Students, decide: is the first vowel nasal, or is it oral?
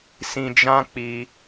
nasal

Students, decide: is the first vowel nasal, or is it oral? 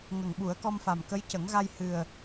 oral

